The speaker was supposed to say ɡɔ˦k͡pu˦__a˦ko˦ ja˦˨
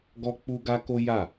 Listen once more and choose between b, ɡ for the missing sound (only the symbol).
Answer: ɡ